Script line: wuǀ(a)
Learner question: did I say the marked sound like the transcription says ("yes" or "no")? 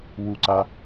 yes